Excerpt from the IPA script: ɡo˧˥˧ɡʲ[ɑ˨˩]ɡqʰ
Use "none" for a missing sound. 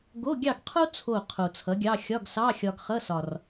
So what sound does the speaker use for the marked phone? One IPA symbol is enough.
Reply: ɑ˥˨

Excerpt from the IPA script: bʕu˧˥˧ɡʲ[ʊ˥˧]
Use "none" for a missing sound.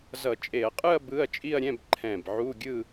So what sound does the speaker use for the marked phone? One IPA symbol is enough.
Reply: ɯ˥˧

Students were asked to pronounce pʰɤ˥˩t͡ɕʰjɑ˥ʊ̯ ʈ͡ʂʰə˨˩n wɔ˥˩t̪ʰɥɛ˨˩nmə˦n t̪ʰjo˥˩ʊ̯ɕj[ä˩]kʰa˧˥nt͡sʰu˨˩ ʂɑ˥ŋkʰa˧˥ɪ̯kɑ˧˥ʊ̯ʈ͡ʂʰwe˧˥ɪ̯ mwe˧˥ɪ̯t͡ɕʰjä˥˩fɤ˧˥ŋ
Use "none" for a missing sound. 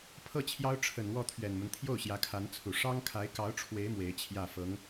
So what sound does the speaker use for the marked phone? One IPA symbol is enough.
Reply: ä˧˥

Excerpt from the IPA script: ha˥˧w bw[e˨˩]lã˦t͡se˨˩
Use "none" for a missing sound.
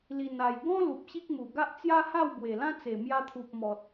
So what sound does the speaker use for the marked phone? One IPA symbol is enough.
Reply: e˨˩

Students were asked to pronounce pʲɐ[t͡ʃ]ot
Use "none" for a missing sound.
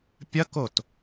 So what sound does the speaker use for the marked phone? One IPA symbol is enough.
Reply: k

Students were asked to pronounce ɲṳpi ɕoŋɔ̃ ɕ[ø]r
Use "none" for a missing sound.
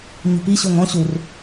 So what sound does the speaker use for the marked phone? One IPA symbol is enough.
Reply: u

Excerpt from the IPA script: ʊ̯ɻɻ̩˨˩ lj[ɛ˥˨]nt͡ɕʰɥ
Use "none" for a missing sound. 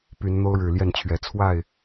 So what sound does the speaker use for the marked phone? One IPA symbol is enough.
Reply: ɛ˥˨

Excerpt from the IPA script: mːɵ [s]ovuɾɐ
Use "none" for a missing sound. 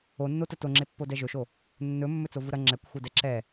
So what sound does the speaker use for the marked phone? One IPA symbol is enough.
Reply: t͡s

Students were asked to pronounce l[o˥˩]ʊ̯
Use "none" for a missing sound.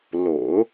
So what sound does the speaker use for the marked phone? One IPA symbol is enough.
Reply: o̰˨˩˦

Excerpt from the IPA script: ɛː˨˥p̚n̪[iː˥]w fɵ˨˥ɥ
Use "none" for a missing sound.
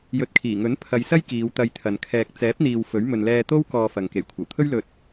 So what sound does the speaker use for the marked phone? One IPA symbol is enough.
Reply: iː˨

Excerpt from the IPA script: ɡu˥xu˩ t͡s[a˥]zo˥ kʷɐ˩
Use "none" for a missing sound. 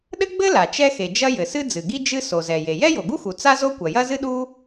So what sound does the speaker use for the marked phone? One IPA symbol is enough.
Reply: a˥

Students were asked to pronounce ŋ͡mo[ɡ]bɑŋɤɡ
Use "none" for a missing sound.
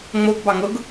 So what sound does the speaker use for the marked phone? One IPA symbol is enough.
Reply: ɡ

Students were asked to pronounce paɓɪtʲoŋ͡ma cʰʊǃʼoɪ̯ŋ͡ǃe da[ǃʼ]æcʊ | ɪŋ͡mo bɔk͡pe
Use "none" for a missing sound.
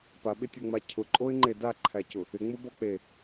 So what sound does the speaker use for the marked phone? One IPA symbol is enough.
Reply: ǃʰ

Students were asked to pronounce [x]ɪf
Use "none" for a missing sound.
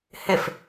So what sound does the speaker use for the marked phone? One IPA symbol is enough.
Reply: h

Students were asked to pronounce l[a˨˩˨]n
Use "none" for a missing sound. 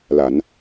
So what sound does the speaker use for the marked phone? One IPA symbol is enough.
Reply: a˨˩˨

